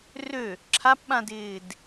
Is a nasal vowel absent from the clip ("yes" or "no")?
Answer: no